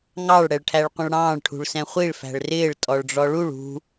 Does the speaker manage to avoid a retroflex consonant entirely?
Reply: no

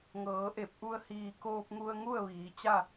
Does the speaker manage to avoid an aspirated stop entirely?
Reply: yes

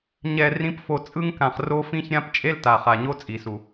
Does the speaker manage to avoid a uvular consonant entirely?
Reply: no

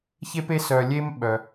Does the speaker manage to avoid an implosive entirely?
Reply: no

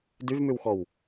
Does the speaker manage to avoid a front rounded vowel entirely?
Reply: no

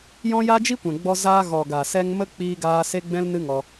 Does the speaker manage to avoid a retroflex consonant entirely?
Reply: yes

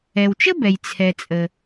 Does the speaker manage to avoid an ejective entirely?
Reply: no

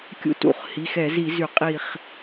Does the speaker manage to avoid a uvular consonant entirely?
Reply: no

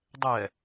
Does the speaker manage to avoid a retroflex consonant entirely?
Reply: yes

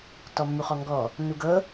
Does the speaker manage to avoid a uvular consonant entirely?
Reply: no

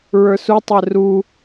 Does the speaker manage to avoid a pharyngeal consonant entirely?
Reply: yes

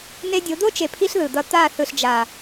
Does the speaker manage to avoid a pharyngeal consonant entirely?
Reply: yes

